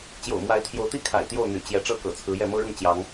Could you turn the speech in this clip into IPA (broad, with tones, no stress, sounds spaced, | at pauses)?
t͡ɕ j o̰˨˩ ʊ̯ m w a˨˦ ɪ̯ t̪ʰ j o˨˦ ʊ̯ t̪ i˥˨ kʰ a̰˨˩ ɪ̯ t̪ j o˥˨ ʊ̯ n̪ y̰˨˩ t͡ɕ j ɛ˨˦ ʈ͡ʂ ɤ˥˨ k ɤ̰˨˩ t͡sʰ ɹ̩˨˦ j ɛ˥˨ m ɤ˦ ɻ ʊ˥˨ ŋ t͡ɕ j ɑ˨˦ ŋ